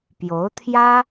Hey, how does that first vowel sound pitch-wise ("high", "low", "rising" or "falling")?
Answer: rising